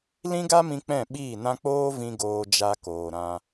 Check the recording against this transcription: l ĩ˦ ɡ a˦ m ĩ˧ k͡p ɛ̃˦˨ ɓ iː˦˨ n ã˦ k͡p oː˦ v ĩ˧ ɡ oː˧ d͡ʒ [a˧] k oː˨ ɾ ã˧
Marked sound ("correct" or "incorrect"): correct